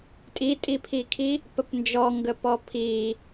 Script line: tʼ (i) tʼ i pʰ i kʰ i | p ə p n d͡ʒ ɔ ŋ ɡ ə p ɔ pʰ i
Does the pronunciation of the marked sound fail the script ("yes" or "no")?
no